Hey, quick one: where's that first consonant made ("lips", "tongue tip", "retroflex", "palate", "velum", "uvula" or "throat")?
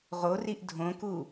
uvula